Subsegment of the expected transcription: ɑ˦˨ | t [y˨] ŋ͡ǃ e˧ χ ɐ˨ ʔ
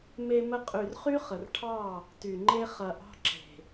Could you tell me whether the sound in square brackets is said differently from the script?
no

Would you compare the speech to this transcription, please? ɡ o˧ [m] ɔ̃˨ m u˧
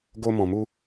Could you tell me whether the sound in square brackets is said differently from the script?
no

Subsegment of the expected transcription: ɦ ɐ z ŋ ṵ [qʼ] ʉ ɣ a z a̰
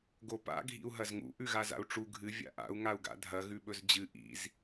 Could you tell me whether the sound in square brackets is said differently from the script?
yes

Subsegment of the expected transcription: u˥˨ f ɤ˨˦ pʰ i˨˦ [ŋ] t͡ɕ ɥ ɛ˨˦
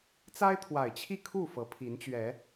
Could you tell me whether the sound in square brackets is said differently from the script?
yes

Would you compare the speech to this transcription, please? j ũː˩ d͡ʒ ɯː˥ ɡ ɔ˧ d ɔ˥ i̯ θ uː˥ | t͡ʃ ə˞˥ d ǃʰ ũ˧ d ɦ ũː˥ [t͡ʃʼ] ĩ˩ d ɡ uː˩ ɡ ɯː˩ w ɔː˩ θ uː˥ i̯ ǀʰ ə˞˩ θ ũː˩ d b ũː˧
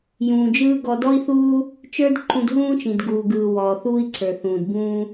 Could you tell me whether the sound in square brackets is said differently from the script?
yes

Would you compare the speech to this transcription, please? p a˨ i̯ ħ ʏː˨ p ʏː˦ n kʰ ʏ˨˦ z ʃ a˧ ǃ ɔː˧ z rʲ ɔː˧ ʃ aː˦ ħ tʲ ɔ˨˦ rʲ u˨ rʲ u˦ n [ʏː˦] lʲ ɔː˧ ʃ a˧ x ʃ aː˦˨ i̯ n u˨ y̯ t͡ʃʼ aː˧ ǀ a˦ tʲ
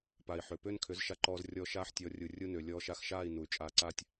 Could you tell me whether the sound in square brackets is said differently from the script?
yes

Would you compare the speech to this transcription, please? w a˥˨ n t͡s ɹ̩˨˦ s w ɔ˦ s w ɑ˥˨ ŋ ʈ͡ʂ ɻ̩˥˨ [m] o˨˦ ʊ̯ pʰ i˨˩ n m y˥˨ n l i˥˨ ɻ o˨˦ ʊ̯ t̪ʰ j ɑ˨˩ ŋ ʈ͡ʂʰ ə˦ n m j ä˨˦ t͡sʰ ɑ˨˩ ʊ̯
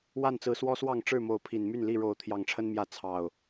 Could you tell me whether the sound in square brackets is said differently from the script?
no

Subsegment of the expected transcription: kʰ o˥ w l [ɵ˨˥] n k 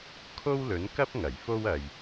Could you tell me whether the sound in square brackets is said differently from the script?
no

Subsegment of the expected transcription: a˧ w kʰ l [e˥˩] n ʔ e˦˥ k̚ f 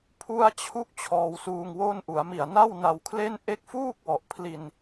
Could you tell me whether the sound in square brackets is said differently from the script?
no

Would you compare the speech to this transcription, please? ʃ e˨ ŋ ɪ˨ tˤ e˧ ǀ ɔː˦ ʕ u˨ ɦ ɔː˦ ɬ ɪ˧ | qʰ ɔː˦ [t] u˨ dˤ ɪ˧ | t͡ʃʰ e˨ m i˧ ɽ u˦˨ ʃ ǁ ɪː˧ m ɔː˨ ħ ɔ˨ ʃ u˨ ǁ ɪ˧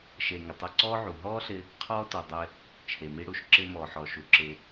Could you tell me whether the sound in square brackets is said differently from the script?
no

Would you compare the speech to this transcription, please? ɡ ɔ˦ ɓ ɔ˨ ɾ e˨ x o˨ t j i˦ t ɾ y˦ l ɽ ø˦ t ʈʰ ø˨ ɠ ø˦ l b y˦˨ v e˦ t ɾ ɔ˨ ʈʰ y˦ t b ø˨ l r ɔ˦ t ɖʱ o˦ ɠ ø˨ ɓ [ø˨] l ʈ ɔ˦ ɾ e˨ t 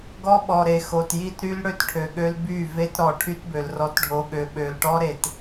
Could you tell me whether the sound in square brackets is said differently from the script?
no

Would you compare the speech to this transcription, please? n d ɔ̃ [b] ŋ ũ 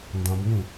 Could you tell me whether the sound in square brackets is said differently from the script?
no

